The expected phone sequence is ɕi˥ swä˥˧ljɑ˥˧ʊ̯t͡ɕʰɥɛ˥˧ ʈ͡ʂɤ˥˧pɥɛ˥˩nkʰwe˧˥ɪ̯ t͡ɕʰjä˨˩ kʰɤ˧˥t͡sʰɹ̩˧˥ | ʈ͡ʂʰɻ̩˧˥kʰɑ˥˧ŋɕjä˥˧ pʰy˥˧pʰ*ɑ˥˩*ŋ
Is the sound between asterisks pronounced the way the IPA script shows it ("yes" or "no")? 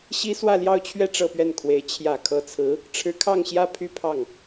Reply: yes